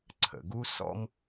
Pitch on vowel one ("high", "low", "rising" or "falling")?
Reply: low